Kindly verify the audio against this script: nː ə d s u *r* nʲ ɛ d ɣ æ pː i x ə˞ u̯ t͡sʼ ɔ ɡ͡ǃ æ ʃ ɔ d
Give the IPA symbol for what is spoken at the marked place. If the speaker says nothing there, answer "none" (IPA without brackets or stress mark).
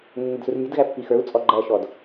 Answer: r